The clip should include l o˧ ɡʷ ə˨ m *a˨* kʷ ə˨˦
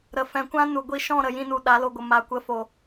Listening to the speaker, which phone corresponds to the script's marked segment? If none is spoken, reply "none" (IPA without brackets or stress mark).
a˨